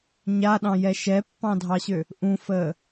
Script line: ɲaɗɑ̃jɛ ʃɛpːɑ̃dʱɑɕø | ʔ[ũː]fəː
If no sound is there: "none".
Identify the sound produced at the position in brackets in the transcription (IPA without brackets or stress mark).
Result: ũ